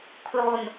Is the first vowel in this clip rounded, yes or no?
yes